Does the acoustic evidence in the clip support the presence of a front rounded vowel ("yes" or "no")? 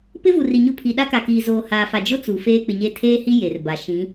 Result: no